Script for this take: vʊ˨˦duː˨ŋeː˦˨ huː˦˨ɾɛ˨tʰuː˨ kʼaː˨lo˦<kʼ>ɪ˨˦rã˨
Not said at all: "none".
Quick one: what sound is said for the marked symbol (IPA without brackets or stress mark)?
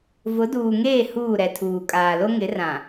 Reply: ŋ